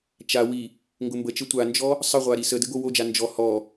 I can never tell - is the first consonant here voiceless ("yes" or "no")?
yes